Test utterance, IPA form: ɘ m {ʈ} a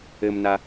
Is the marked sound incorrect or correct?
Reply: incorrect